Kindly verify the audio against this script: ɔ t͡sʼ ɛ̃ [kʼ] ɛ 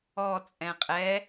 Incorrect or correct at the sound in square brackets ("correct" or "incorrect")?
incorrect